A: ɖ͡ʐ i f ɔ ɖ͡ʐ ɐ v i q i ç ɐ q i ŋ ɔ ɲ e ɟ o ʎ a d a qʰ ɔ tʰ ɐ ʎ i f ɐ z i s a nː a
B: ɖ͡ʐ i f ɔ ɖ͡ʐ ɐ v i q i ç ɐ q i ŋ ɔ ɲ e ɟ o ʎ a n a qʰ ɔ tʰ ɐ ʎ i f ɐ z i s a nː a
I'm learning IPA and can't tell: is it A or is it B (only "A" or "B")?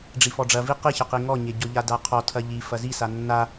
A